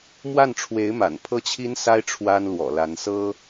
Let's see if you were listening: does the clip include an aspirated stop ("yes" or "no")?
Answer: yes